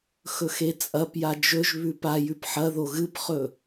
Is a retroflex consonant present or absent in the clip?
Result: absent